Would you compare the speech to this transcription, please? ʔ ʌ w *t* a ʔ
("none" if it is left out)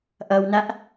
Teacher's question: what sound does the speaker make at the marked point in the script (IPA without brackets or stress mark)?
n